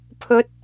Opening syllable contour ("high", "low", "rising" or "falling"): rising